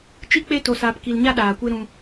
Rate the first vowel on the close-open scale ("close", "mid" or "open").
close